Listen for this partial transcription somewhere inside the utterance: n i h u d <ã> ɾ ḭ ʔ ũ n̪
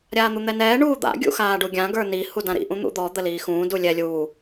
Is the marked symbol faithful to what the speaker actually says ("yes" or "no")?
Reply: yes